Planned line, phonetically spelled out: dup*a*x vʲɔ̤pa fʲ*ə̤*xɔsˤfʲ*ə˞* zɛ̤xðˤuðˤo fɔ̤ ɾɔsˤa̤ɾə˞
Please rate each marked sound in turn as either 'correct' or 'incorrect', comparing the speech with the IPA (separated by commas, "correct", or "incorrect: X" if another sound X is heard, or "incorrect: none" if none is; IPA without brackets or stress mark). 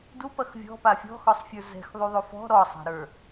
incorrect: ɐ, incorrect: ɔ̤, correct